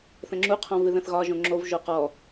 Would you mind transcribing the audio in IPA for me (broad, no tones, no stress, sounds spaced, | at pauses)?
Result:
θ ə̃ ŋ͡ǁ u qʰ ɔ̃ v ɨ ð ə̃ θ ɣ ɒ ʒ õ ŋ͡ǁ o v ʒ o q ɔ